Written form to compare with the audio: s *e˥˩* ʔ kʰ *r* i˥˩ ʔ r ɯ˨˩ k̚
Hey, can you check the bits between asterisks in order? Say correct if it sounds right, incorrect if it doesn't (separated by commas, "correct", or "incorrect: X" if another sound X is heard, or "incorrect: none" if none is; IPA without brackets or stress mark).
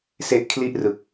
correct, incorrect: l